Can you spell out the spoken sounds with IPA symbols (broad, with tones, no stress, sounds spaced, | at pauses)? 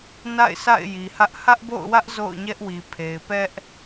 n a̰˦˨ ɪ̯ s a̰˦˨ ɪ̯ j i˨ h ä˦ ʔ h ä˦ ʔ b o̰˦˨ ʊ̯ w ä˦ ʔ z o̰˦˨ ʊ̯ ɲ ɛ˦ ʔ w i˨ pʰ e˨ ɪ̯ p ɛ˦ ʔ